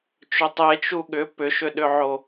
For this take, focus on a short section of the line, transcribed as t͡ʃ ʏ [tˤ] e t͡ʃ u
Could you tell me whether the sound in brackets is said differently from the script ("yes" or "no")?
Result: no